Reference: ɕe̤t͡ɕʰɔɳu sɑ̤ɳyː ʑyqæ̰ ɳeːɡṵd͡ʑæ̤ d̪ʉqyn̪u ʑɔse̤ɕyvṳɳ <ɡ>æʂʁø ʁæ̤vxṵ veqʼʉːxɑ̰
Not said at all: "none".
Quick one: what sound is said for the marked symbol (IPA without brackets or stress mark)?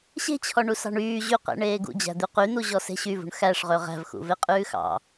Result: x